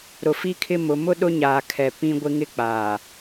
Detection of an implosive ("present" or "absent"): present